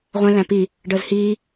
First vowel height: mid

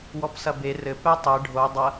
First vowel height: mid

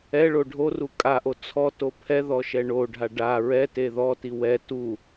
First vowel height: mid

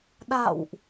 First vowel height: low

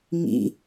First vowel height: high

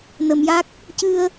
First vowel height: mid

